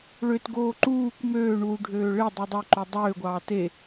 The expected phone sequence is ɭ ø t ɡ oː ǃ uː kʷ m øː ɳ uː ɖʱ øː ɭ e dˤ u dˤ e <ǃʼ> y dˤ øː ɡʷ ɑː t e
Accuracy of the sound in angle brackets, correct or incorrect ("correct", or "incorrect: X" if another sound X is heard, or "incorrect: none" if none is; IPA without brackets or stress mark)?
incorrect: ǃ